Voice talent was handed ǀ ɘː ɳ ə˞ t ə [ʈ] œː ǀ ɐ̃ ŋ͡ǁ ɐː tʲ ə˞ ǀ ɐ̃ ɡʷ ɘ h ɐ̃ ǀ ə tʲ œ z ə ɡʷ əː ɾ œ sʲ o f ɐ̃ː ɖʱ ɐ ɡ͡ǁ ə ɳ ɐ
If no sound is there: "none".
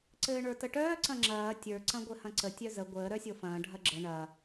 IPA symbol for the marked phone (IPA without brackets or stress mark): ʈ